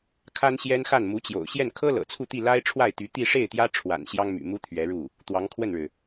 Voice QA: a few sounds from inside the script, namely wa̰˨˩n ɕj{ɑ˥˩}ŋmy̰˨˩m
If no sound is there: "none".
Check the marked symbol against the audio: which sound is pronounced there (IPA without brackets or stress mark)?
ɑ˥